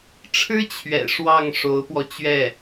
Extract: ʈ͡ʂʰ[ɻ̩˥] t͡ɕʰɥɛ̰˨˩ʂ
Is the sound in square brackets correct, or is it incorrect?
correct